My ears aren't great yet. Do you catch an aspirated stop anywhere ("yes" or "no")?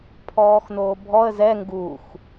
yes